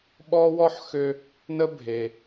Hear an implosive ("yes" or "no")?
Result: yes